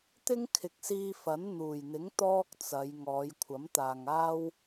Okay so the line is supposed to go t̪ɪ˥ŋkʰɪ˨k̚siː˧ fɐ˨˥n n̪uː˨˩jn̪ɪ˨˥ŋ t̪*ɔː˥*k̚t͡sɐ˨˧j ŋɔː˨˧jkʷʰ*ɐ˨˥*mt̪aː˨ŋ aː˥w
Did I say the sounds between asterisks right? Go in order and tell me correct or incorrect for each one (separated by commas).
correct, correct